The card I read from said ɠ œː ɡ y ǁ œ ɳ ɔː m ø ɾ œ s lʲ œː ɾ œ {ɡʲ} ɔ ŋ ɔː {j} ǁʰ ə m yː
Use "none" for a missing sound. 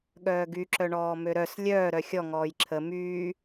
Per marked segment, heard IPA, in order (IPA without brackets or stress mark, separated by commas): xʲ, j